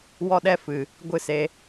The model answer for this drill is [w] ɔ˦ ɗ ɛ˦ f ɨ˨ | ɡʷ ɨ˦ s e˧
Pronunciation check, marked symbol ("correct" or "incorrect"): correct